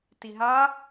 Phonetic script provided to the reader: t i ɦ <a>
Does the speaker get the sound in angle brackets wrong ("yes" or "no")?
no